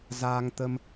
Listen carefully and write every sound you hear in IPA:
zaː˧ŋt̪ə˧m

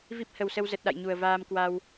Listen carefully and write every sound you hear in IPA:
vi˦˥p̚hə˨˩wsə˧wzə˨˩t̚ ɗa̰˧˨jɲu˨˩ə̯vaː˧m kwa˧w

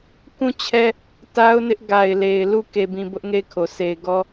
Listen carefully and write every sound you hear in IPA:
kũ˦˨t͡ɕʰɛ˦ | ta˦ʊ̯nɪ˦ʔ ɡa˨ɪ̯le˨ɪ̯ lu˦˨ ke˨bĩ˨ bʊ˦ʔ ŋe˦˨ɪ̯kʰo˨ se˨ɪ̯ɡɔ˦

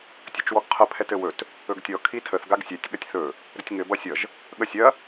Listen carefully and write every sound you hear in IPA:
tʲɘt͡ʃwɔɡqʰə pʰɛtɘwɵt | ɵɡtʲɔ kʰitʰəθ ɡaɡsʲɛtʲ ɠɐtʲθɵ | ɾətʲŋɘ bʌsʲʌʒ | ɠəsʲɐ

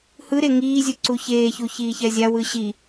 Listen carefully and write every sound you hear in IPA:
hɯɾe ŋiːzʲu ǀuçeːçu çiːçɛzʲawɯ ɕi

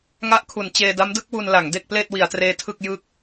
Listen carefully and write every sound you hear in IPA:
ŋa˦˥ʔkʰu˩˦n t͡ɕeː˧da˦˥mdɯ˦˥k̚ wu˧nla˩˦ŋ de˥˩k̚pleː˥˩t̚ wi˩˦a̯treː˧tʰɯ˥˩k̚ jɯ˥˩k̚

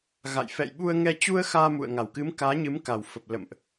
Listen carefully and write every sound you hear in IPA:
ɣa̰˧˨jfɛ̰˧˨jɓu˧ə̯ ŋɛ˧t͡ɕu˧ə̯xaː˧mṵ˧˨ə̯ ŋa˨˩wkɨ˨˦mkaː˨˦ ɲɨ˨˦m ka˨˩wfə˨˩p̚ lə̰˧˨mʔ

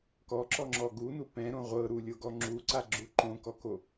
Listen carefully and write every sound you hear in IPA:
kɔǁɔŋ͡ǁɔ ɡunu pɛ̃ɾõ ʁʷɤɾulʲoɡɔ ŋ͡ǁuǀaɡ͡ǁu ǃõkɔko

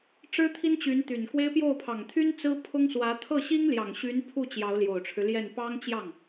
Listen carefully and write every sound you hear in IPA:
ʈ͡ʂɻ̩˥t̪ʰi˥nt͡ɕy˧˥n t̪y˨˩nkwe˥ɪ̯ pjo˥˩ʊ̯pʰɑ˨˩ŋt̪ʰy˥n t͡sɹ̩˥pʰʊ˥ŋswä˧˥ t̪ʰɤ˥˩ɕi˥ŋljɑ˨˩ŋ ɕy˧˥npʰu˥˩ t͡ɕjɑ˧˥ʊ̯ljo˨˩ʊ̯ʈ͡ʂʰɻ̩˦ljɛ˥˩n pɑ˥ŋt͡ɕjɑ˥˩ŋ

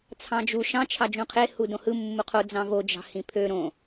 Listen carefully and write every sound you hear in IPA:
t͡sʰɑ̃d͡ʒu ʃɑ̃ t͡ʃʰɑd͡ʒũqʰe hudõhɯ mːuqʰo d͡zɑ̃vo d͡ʒɑ̤hĩpʰø ɾõ

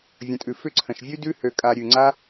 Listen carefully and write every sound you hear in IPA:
vʲə̃˨tʼʉ˨ fʏ˧ǀʰə̃˨ʃ vʲʉ˦dʉ˦ hø˧kʼa˧ ɾʲʉ˨ ŋ͡ǀa˦

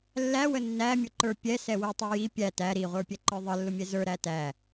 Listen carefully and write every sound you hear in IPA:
lːæ wənːæmʲʊ ǃə˞pʲɛ sɛwətˤʌ ji pʲæ tæ ɾiʁʷə˞pʲɛ ǃə˞ðˤə lːʊmʲɛzə˞ ɾætæ

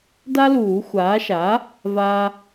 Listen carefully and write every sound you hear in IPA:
da˦luː˨˩˦xʷaː˩˥ʃa˩˥ | va˦

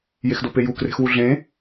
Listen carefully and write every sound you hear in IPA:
jexdopeju kre̤xwuɮẽ

